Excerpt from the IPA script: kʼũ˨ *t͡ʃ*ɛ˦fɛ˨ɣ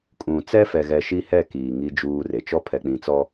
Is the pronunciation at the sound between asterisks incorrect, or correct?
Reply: incorrect